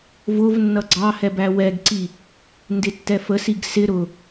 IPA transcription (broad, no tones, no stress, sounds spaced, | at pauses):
v ʊ v nː ʌ ɡ͡ǀ ɑ h ɛ b æ w ɛ ɡ ǀ i | n d ɪ tː ɛ f ə s i ɡ s ɪ ɾ ʊ